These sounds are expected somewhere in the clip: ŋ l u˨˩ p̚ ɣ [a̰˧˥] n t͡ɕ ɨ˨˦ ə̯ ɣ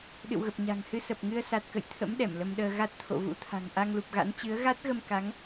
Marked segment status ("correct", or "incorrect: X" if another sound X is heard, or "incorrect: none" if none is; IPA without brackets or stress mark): correct